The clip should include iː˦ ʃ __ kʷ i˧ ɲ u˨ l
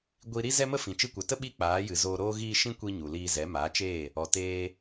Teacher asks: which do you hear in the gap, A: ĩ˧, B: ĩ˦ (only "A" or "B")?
B